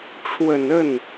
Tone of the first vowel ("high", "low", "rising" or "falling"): low